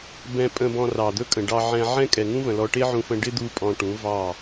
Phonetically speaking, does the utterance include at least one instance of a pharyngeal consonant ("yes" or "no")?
yes